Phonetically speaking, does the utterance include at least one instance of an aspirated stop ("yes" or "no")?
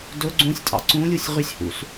no